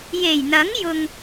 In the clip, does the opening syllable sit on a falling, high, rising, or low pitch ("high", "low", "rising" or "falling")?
low